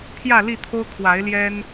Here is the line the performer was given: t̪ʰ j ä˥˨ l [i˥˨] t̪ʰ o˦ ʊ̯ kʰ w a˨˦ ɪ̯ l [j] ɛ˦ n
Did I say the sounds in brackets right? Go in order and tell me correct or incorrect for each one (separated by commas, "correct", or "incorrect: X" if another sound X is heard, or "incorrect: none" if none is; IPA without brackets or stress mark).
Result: correct, correct